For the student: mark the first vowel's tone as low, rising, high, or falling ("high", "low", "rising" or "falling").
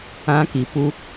high